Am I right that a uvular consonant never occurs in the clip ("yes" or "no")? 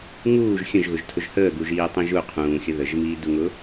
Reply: no